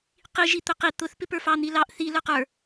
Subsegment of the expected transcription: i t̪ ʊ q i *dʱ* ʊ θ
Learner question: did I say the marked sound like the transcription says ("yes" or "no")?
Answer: no